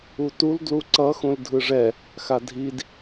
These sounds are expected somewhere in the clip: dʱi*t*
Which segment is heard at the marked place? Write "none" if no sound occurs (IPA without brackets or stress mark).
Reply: d